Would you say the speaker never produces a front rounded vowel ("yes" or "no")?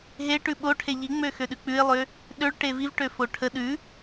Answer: no